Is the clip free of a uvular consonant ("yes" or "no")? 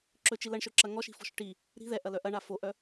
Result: yes